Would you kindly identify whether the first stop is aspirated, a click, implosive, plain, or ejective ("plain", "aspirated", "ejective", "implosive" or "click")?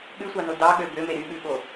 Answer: implosive